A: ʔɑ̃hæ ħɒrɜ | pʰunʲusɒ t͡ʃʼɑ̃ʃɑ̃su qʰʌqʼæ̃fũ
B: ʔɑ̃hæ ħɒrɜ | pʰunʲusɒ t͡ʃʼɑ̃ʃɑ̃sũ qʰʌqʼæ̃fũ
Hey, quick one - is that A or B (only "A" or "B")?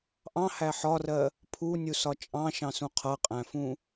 B